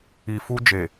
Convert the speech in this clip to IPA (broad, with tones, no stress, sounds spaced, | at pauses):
i˨ f u˧ d͡ʒ e˨